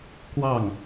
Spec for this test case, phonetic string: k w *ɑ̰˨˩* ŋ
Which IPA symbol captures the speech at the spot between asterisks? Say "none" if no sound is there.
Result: ɑ˥˩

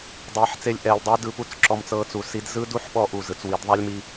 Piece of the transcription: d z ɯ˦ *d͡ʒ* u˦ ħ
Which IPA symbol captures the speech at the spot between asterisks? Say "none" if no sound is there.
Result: d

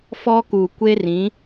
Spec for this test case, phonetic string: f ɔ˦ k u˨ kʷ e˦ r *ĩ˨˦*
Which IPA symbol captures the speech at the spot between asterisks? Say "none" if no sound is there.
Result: ĩ˨˦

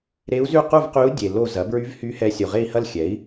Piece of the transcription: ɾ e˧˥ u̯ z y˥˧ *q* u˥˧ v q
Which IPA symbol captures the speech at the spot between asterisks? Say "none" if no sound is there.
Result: q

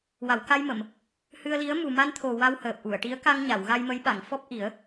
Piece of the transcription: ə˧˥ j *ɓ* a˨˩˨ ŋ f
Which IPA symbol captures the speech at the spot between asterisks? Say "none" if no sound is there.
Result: ɓ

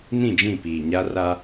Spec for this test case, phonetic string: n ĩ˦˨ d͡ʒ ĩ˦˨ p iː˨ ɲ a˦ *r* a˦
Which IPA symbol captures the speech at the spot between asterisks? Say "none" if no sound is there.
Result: r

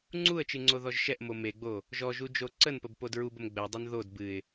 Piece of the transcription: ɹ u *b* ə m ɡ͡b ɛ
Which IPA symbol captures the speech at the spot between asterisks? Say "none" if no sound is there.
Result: b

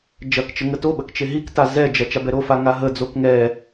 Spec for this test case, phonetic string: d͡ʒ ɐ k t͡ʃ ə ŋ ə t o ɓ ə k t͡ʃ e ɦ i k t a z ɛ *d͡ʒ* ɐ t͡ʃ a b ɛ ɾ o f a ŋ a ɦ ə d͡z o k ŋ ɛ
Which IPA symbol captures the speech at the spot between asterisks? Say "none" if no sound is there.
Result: d͡ʒ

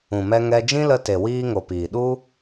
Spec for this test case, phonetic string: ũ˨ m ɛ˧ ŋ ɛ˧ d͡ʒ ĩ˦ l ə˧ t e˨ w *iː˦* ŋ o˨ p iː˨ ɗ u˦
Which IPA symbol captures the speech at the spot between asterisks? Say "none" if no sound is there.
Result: iː˧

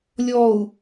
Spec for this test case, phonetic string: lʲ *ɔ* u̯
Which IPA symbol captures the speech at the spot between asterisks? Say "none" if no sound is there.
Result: ɔ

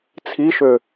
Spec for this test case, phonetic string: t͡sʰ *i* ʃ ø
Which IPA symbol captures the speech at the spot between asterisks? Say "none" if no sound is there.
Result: i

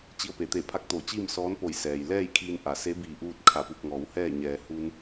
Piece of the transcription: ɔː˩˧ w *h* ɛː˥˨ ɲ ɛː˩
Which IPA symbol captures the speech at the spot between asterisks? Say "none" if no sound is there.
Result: h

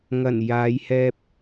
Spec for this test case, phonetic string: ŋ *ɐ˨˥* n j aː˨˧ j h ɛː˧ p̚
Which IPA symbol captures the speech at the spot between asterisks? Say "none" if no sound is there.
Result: ɐ˨˩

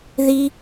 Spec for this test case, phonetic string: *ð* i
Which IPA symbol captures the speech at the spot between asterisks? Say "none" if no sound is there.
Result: ð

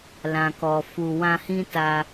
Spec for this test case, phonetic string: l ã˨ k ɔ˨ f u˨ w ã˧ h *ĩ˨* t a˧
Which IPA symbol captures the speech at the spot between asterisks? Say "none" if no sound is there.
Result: ĩ˦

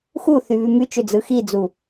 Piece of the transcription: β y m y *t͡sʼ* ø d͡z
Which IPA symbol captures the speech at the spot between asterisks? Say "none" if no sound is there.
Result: t͡ʃ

